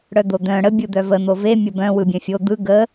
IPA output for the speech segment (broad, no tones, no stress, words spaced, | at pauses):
ɽœd̪od̪œ̃ ɽə bʲɯd̪œvə n̪ove mʲəbœ̃ wɯbʲœ̃fʲo d̪ɯ ɡə